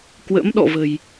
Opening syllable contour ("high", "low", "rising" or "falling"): rising